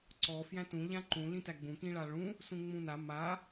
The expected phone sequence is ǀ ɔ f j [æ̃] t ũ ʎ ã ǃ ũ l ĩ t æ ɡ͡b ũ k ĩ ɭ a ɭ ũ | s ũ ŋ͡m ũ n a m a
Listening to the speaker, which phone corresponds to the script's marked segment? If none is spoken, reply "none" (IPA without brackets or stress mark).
æ̃